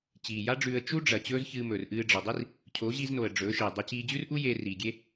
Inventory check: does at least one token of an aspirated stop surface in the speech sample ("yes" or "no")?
yes